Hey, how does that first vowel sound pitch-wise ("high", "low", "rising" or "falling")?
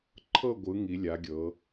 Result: falling